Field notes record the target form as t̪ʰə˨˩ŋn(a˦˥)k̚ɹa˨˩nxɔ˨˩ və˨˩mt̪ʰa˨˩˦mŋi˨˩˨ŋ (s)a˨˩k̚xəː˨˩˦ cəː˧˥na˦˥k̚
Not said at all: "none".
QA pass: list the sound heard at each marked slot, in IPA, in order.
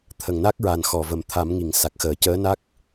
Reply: a˦˥, s

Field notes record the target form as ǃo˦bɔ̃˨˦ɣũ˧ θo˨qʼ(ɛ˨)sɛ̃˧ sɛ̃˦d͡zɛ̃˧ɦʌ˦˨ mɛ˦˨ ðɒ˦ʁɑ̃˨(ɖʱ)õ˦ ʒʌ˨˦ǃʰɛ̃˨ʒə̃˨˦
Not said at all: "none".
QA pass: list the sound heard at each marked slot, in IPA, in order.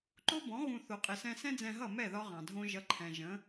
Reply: ɪ˨, dʱ

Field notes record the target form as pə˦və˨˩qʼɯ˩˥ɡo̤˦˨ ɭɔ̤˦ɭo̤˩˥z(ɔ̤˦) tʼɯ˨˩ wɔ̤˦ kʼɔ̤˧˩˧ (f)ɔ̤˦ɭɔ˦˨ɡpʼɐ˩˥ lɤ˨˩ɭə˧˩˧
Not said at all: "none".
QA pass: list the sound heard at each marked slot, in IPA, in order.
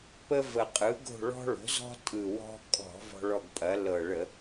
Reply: ɔ̤˦, v

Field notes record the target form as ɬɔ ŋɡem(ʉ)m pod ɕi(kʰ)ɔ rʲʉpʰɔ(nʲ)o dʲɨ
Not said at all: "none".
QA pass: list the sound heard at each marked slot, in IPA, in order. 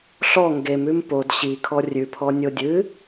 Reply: ʉ, kʰ, nʲ

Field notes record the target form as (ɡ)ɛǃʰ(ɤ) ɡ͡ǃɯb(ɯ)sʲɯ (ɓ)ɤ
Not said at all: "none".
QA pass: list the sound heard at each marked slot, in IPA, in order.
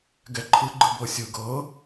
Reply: ɡ, ɯ, ɤ, ɡ

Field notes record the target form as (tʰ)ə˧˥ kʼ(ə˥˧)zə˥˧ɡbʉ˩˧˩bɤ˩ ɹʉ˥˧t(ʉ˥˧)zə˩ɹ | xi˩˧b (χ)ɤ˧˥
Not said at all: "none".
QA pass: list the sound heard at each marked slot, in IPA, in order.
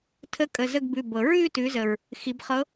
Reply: tʰ, ə˩˧˩, ʉ˩˧, χ

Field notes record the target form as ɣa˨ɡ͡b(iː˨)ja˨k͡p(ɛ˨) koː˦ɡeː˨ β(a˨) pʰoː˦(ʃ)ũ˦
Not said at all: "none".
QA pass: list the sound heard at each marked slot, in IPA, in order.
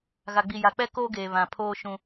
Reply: i˨, ɛ˦, ã˨, ʃ

